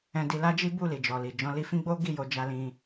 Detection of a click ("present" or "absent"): absent